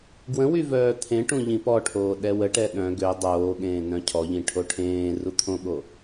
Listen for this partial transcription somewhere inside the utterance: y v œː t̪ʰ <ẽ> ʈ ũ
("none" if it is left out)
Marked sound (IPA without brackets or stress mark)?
ẽ